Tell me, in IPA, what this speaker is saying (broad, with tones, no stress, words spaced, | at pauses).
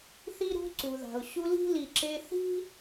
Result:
θi˥ɾṳ˥ǀu˩ða̤˩ʊ̯ ɕu˦li̤˥li˨ǁe˦ θi̤˥